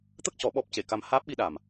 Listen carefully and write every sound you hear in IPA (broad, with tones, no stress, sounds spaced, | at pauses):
t̪ ə˦˥ k̚ c ɔ˨˩˦ ɓ ɔ˦˥ p̚ c e˨˩˨ k a˧ m h aː˦˥ p̚ ɓ i˧ ɗ a˨˩ m